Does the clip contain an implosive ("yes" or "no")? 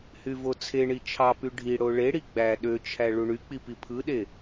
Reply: yes